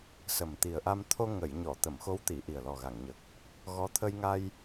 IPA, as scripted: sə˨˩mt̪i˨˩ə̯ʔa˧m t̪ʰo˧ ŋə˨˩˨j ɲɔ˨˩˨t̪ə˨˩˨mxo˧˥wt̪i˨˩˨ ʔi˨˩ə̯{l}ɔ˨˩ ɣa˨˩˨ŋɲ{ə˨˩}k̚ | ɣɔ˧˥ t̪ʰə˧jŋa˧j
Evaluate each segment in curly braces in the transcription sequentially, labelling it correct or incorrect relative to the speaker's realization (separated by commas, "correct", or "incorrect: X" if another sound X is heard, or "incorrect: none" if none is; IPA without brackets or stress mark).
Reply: correct, correct